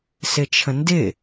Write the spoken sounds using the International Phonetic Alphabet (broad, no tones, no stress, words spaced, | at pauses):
sɪt͡ʃʰə̃ndɪ